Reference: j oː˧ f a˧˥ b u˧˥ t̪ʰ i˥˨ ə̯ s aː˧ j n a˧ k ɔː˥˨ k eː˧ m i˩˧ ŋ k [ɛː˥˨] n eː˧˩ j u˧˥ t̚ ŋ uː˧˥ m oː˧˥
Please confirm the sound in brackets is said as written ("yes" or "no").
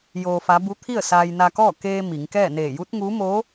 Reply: yes